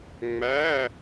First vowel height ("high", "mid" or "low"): low